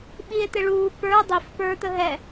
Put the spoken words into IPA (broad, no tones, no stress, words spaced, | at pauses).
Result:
ɓie̯t̪ɪɭuː pə˞ dˤif pə˞ t̪əɦɛ